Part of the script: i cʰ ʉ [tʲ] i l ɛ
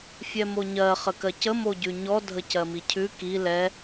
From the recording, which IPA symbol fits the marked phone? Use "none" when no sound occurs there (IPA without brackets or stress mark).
k